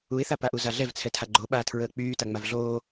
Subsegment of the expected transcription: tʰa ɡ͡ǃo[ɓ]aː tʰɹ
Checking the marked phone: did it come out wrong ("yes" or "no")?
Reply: no